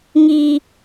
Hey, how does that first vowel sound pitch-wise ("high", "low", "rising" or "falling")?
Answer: low